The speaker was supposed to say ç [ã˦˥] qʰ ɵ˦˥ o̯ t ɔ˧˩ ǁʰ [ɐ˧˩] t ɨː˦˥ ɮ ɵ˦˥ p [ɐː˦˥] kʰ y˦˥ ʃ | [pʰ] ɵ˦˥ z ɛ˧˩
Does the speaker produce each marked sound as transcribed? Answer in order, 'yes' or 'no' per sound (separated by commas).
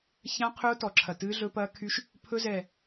yes, yes, yes, yes